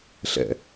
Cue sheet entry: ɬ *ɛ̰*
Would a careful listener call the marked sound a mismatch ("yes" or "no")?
no